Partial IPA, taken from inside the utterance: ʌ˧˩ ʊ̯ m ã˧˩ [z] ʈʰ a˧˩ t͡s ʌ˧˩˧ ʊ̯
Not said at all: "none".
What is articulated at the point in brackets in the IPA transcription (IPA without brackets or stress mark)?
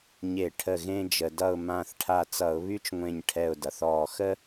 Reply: θ